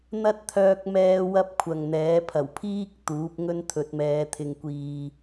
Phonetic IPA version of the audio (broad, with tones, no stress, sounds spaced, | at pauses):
n̪ ɐ˥ t̚ t̪ʰ œː˧ k̚ m ɛː˧ w ɐ˧ p̚ kʷʰ ɐ˨ ŋ n̪ ɛː˨˥ pʰ ɐ˨˩ w pʰ iː˥ k̚ t̪ uː˨˥ p̚ ŋ ɵ˥ n t̪ʰ ɵ˨˥ t̚ m ɛː˨˧ t̪ʰ ɪ˨ ŋ kʷ iː˨